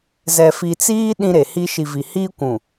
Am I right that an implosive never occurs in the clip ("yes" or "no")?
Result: no